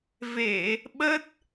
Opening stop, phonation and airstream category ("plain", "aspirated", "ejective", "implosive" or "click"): implosive